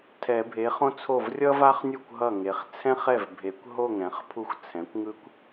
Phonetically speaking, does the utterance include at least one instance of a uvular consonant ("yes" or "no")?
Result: yes